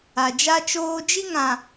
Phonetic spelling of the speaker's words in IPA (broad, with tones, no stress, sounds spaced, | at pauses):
a˨ d͡ʒ a˦ t͡ʃ oː˦ d͡ʒ i˦ ŋ ã˨